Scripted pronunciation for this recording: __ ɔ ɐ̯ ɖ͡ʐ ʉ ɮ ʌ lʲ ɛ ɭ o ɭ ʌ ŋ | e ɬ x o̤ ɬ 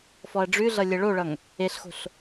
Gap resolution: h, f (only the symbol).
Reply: f